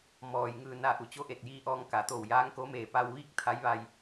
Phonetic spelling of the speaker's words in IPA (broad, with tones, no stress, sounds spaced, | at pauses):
m ɔː˩ j ŋ ɯː˧˩ n a˧˩ ʔ u˩ t͡ɕ o˧˥ ʔ e˧˩ t̚ j iː˧ ʔ ɔː˧ ŋ k a˩˧ t̪ o˧˩ w j aː˧˥ ŋ k o˧˥ m eː˧˩ p a˧ w ʋ iː˥˨ k̚ t̪ʰ a˧˥ j ʋ a˧ j